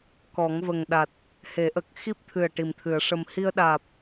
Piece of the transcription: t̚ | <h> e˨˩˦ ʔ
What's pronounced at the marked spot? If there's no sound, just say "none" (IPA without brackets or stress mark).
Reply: h